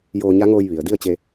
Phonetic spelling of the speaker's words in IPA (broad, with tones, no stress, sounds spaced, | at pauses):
j oː˧ ɲ a˧˥ ŋ oː˧ j ʋ i˩ ə̯ d i˥˨ ə̯ t͡ɕ e˧